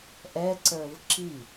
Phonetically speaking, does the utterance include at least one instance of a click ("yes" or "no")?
yes